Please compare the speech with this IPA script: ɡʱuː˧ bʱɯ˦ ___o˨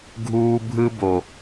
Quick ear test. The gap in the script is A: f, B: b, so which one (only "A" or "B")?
B